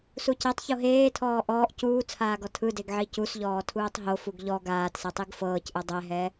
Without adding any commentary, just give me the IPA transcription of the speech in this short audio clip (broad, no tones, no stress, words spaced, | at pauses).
sucɛtˤ çoɦeːtʰɔː ʔɔːʔ cuːt͡sʰaːɡɔ tʰɯdeɡʕi cus ʎɔːtʰuːtˤɦo fuɡʎɔ ɡaːtsɛ tˤiɡfɤːcʔɯ dˤɛɦɛ